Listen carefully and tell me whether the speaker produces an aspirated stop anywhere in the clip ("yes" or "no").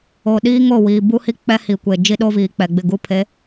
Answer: yes